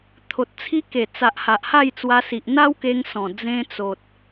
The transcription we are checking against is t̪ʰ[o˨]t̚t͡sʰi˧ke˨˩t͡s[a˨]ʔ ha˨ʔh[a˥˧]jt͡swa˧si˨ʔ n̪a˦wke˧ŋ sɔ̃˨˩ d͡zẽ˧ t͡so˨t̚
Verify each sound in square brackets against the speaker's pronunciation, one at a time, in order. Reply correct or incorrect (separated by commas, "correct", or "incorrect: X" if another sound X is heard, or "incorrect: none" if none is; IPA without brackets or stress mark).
correct, correct, correct